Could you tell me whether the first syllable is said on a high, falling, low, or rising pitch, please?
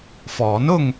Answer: rising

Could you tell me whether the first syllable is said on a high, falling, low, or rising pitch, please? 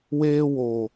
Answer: high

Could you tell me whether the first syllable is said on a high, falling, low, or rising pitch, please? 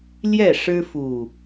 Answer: falling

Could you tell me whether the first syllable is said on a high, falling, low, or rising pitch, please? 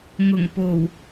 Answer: low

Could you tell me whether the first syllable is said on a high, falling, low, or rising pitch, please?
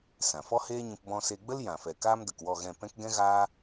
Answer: low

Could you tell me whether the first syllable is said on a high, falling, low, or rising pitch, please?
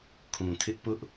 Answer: low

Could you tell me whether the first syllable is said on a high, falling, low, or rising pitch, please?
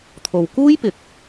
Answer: low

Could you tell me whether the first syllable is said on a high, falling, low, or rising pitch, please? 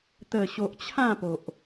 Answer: low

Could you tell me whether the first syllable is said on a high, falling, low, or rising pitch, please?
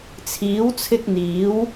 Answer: rising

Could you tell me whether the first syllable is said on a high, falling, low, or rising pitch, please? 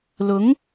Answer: rising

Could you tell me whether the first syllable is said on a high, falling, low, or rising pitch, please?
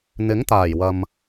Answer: rising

